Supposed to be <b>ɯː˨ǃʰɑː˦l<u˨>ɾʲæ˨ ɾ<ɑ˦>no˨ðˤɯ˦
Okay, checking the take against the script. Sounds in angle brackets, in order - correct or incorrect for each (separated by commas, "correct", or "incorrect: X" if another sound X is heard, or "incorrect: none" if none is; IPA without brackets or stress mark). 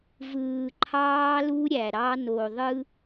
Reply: incorrect: v, incorrect: u˦, correct